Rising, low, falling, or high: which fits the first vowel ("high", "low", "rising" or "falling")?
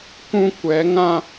high